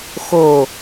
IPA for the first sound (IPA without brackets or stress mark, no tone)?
x